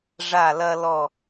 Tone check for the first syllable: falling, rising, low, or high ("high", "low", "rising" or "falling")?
falling